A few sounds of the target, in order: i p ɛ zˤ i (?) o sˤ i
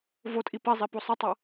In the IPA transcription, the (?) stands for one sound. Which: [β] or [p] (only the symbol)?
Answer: p